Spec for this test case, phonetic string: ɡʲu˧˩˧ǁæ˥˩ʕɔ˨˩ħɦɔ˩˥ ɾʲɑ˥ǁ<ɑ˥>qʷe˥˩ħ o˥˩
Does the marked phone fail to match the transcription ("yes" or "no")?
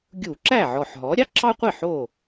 no